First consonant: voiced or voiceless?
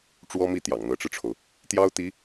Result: voiceless